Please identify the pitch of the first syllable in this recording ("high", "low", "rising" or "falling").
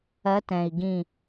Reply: rising